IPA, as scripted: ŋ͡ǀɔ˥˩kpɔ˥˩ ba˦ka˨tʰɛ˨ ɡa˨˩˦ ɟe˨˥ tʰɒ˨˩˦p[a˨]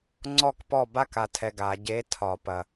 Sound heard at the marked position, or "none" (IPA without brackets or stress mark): ɐ˨